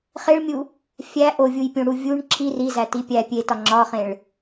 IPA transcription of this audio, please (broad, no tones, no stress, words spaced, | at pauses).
χeɭmʲu | fʲæ ʔovʲujpʲõɽu vʲuɳ ǁʰir izæ tipʲæ pʲetɒ ŋ͡ǁɒχẽɭ